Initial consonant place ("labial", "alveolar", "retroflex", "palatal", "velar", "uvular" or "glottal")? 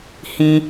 glottal